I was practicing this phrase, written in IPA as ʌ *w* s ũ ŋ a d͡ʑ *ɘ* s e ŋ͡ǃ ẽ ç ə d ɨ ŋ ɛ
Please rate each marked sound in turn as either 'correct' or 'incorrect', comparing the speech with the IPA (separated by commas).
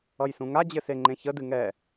incorrect, correct